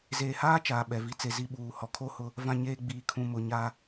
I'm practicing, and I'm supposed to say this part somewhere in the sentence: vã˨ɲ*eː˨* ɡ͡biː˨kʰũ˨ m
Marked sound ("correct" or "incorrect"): correct